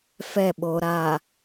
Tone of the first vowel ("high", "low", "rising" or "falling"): falling